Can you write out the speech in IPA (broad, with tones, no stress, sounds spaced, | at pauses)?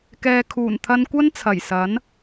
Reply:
k ɛː˨ kʰ uː˨˩ n t̪ʰ ɐ˧ n kʷ ɐ˥ n t͡sʰ ɐ˨˩ j s ɐ˨˥ n